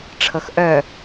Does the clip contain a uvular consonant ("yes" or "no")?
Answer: no